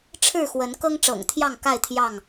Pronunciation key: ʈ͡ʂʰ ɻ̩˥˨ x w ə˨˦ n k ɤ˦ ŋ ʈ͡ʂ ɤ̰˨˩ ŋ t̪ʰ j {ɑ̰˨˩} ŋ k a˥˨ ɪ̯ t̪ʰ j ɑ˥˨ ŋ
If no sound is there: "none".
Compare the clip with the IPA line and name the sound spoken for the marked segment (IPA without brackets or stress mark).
ɑ˥˨